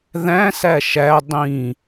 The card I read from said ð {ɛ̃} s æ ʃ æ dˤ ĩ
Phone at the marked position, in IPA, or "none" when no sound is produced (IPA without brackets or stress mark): æ̃